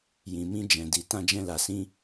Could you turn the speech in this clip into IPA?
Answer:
j ĩ˨ m ĩ˧ d͡ʒ ɛ̃˨ d i˨ t ã˧ d͡ʒ ɛ̃˧ l a˨ s ĩ˧

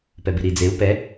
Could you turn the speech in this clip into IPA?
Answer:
p ɛ b i ɾ i d͡z e u̯ p ɛ

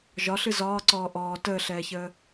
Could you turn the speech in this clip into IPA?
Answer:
ʒ ɒ ɬ ɨ z ɒː ǀ ɔː ʔ ɔː t əː ɬ ɛː ç əː

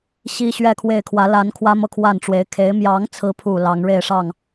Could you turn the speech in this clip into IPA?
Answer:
ɕ i˥ ɕ ɥ ɛ˥˧ kʰ w e˥˩ ɪ̯ kʰ w ä˧˥ l a˧˥ n kʰ w ä˥ m ɤ˥˧ kʰ w a˥˩ n ʈ͡ʂ w e˧˥ ɪ̯ kʰ e˧˥ ɪ̯ m j ɑ˧˥ ŋ t͡sʰ ɹ̩˧˥ pʰ u˨˩ l ɑ˧˥ ŋ ɻ e˥˧ ɪ̯ ʂ ɑ˥˩ ŋ

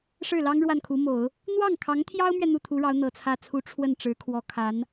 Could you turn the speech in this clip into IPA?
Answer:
ʂ ɻ̩˥˩ l ɑ˥ ŋ ɻ w a˥˩ n kʰ u˧˥ m o˨˩˦ ʊ̯ | n̪ w ɑ˥˩ ŋ kʰ ɑ˧˥ ŋ t̪ʰ j ɑ˥ ʊ̯ m ɥ ɛ˨ n̪ u˥˩ t̪ʰ u˧˥ ɻ ɑ˧˥ ʊ̯ n̪ ɤ˨˩ t͡sʰ ä˥˩ t͡sʰ u˥ ʈ͡ʂʰ w ə˥˩ n ʈ͡ʂ ɻ̩˧˥ kʰ w ɔ˧˥ kʰ a˧˥ n

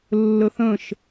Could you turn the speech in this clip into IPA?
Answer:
lː ə θ ə̃ ʃ

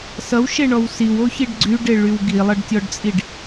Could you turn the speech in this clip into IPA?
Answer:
s ʌ w ʃ e ɳ ɔ w s i w o ç i ɖ ɡ͡ǀ y ɖ e ɭ y w ɡ i lˠ ʌ ɖ tʲ ɔ ɖ t͡sʼ i ɖ

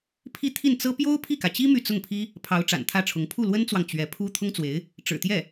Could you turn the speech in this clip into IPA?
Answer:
pʰ i˥˧ t̪ʰ i˥˩ n t͡s ɤ˥ p j o˥ ʊ̯ pʰ i˥˩ k ä˩ t͡ɕ i˥ m y˥˧ t͡s ʊ˥˩ ŋ pʰ i˥ | pʰ ɑ˧˥ ʊ̯ ʈ͡ʂ a̰˨˩ n t̪ʰ ä˥˩ ʈ͡ʂʰ ʊ˧˥ ŋ pʰ u˥˩ l w ə˥ n t͡s w ɑ˨ ŋ t͡ɕ ɥ ɛ˧˥ pʰ u˥ t̪ʰ ʊ˥ ŋ t͡s w e˧˥ ɪ̯ | ʈ͡ʂ ɻ̩˨˩ t̪ j ɛ˥˩

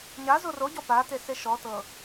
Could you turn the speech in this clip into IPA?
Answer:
ɲ a z o r o ɟ ɔ p a t e s e ʃ ɔ t ɤ

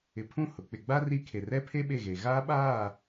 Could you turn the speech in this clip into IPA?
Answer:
ɪ˨ pʰ ũ˦˨ h ʊ˨ k͡p ɪ˨ ɡ͡b a˦ r i˦ kʰ e˨ r ɛ˦ pʰ e˦ ɓ e˦˨ ɣ e˨ ɣ aː˦ ɓ aː˦˨

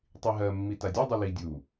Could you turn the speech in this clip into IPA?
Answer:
tˤ i ɦ ɜ mː i t a dʲ u dˤ u l i dʲ u

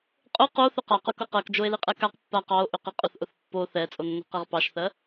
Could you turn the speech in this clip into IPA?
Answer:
qʼ ʊ q o θ ʏ q a q ʊ k ʊ q ɜ k d͡ʒ o e̯ l i qʼ ɛ k a q pː a q ɑ o̯ ʔ ʏ q i qʼ ʊ θ ʔ ʊ θ pː o θ ɛ t͡sʼ o nː o̤ q ɛ ʁ p ɑ ʃ θ ɜ

